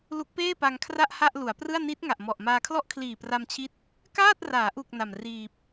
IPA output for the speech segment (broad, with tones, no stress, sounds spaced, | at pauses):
l u˦˥ k̚ p eː˥˩ p a˧ ŋ kʰ r a˥˩ ʔ h a˥˩ ʔ l u˩˦ a̯ p r ɯ˥˩ a̯ n i˦˥ t̚ ŋ a˨˩ ʔ m ɔ˨˩ ʔ m aː˧ kʰ l ɔ˥˩ ʔ kʰ l iː˨˩ p r a˧ m t͡ɕʰ i˦˥ t̚ | k aː˥˩ t̚ r aː˩˦ ʔ u˨˩ k̚ n a˨˩ m r iː˨˩ p̚